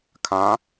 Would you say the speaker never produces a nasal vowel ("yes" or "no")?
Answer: no